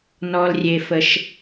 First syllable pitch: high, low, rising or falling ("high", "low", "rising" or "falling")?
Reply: low